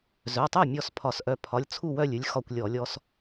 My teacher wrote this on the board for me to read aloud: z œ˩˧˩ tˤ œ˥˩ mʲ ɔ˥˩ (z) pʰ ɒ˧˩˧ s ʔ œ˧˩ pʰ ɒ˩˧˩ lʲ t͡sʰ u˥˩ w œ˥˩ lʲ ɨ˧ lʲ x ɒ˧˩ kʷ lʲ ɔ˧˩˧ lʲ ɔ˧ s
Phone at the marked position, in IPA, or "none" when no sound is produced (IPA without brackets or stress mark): s